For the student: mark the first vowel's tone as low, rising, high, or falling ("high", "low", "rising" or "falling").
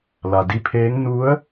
low